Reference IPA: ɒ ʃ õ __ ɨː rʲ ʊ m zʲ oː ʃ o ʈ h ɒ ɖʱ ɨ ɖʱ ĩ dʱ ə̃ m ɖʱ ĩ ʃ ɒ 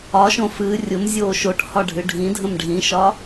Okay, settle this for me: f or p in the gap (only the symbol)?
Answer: f